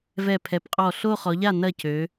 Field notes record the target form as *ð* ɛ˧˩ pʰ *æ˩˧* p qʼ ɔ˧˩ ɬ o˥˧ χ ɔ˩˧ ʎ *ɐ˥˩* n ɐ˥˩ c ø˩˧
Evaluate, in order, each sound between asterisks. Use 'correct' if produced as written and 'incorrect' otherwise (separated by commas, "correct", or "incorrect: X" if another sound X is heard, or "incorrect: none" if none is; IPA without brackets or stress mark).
incorrect: v, incorrect: ɛ˩˧, incorrect: a˥˩